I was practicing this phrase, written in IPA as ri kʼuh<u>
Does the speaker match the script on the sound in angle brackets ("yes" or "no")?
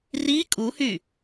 no